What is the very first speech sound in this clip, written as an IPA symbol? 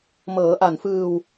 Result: m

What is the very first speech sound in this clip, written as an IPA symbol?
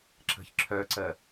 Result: ǁ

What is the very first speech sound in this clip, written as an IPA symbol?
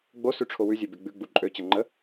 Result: ɡ͡b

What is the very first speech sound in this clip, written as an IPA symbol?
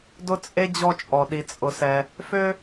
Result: d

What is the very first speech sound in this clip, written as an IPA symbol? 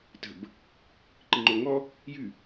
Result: t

